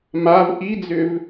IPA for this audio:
mav ʔid͡zʏv

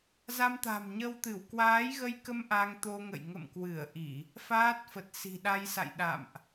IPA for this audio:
za˧mt̪a̤˨˩mɲə˧wt̪ɨ˧˩w kwaː˨˦jɣə˧jkə˧m ʔa˧ŋt̪o˧ŋə̰˧˨j ŋə̰˧˨mkwɨ˧˩ə̯ ʔi˧˩˨ | faː˦˥t̚fə˨˩t̚ si̤˨˩ɗa˧jsa̰˧˨j ɗa̰˧˨mʔ

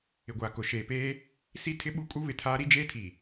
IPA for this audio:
ɪ˨ɡʷaː˨ kʊ˨ʃeː˨peː˦ | si˦ tʰɪ˦ɓu˦kʼu˦ βɪ˨tʰaː˦ ɾi˦d͡ʒeː˦ tʰi˨

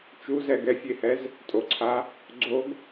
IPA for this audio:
t͡ʃuzɛ ɡɛfʲehɛz | tʼoǀʰa | ɡ͡ǀoɡ

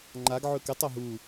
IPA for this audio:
ŋ͡ǃaɡʕɵ kɨtˤɵ ɦu

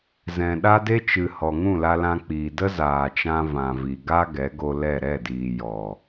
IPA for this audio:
zɛ̃˨ɗa˦ de˦t͡ʃɨ˨hɔ˨ ŋũ˦˨la˧lã˧k͡piː˨ də˦zaː˨t͡ʃã˧ vã˨vi˨ɡa˦ ɡɛ˨˦ɡo˧lɛ˦˨ ɾɛ˦˨diː˨ jɔ˨

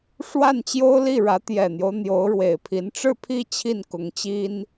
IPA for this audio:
ʂwa˥˩nt͡ɕjo˥ʊ̯li˥˩ɻä˧˥ t̪jɛ˨˩n̪jo˦ʊ̯ n̪jo˧˥ʊ̯ɻwe˨˩ɪ̯pʰi˧˥n ʈ͡ʂɻ̩˥˧pʰi˥˧ t͡ɕʰi˥˩nkʊ˧˥ŋt͡ɕi˥n

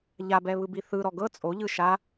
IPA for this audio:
ʎabɛβɯbi θɯɾɔ ɡɤ t͡sʼoʎɯ ʃa

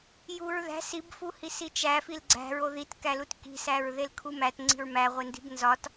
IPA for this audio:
juɹðæ̤s ibfuhis it͡ʃæ filɡ͡ǀæ̤ɹ oðitkælut ki̤sæɹ ðelkʰumæt ŋ͡ǀi̤ɹmæʁʷendi̤b nzɒt

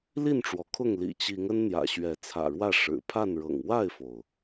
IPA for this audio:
li˥˨nʈ͡ʂwɔ˩kʰʊ˥˨ŋ lḭ˨˩t͡ɕi˨˦ŋ ə˦nn̪jä̰˨˩ɕɥɛ˨˦ t͡sʰä̰˨˩ɻwä˥˨ ʂɻ̩˨˩ pʰa˥˨nɻɤ̰˨˩ŋ wa˥˨ɪ̯fo˩ʊ̯

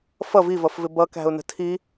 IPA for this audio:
fʌ vivʌfvɪ bʌkæ̤ʊ̯nə̤ tʰi

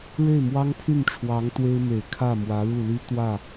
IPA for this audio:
ɻe˥˩ɪ̯mwɑ˥ŋpʰy˥˩nʈ͡ʂʰwɑ˧˥ŋ t̪we˥ɪ̯me˨˩ɪ̯ kʰä˥˩mwä˧˥ɻu˥˩li˥ t̪wä˥˩

